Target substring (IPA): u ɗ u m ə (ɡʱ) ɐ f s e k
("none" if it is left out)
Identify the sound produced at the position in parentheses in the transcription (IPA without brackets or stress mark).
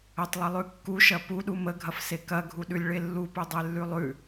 ɡʱ